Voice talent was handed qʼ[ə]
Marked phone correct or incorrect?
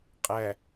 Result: incorrect